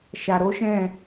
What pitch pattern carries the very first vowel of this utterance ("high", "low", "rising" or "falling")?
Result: low